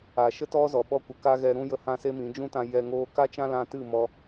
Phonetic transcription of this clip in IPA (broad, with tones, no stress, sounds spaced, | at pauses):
a˨ ʃ ə˦ t ɔ˦ z ɔ˨ ɓ ɔ˧ kʷ ə˨ k a˦ ɣ ɛ˧ ɾ ũ˦ j ə˧ h ã˦ s e˦ m ĩ˨˦ d͡ʒ ũ˦ t ã˧ j ɛ˧ ŋ oː˦ k a˦ t͡ʃ ã˦ l ã˧ t ɨ˦˨ m ɔ˧